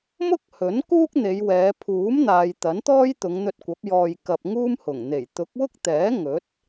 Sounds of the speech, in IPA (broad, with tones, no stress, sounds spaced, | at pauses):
m ʊ˥ k̚ h ɵ˨˥ n k uː˥ k̚ n̪ e˨˧ j w ɛː˨˧ pʰ uː˨˥ m n̪ aː˨ j t̪ ɐ˨˥ n t̪ ɔː˥ j t̪ ʊ˨˧ ŋ n̪ ɵ˧ t̚ kʷ ɐ˨˥ p̚ j ɔː˧ j k ɐ˧ p̚ ŋ uː˥ m h ʊ˨˩ ŋ n̪ e˨˩ j t̪ ʊ˨˥ k̚ w ʊ˥ k̚ t̪ ɛː˨˥ ŋ ɵ˨˥ t̚